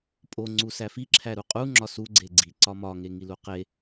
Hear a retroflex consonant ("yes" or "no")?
no